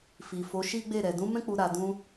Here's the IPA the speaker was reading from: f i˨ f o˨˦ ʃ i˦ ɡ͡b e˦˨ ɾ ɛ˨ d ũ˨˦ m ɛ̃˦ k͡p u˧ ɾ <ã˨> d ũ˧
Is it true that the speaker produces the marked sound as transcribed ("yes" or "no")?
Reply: no